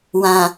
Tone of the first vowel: low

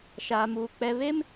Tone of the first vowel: low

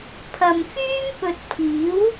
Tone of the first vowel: low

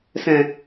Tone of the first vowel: low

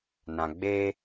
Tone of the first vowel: low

